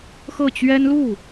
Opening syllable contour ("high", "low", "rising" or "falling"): falling